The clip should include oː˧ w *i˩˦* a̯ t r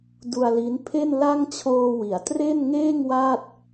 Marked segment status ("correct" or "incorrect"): correct